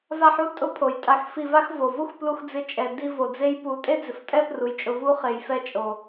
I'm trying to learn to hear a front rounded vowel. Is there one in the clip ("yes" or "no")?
no